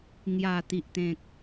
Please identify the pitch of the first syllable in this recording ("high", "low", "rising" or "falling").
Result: low